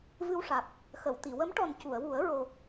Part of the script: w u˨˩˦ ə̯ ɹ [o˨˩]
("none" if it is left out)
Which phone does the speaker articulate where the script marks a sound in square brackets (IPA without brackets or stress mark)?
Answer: o˨˩